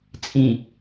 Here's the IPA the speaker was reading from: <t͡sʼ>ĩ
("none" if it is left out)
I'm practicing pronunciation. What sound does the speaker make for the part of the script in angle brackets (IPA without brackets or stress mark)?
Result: t͡sʼ